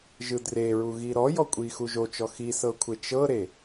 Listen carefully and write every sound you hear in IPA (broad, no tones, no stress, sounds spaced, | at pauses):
ʒ ɯ d r e ɹ u ɣ i ɾ ɔ j ɔ kʷʼ i x u ʒ o t͡ʃ ɔ x i s ɤ kʷʰ e t͡ʃ ɤ ɾ e